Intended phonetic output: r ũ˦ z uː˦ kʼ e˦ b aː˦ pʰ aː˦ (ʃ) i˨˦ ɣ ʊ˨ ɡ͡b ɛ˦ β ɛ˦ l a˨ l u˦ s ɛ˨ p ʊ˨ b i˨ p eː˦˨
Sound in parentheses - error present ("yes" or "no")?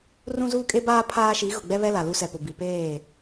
no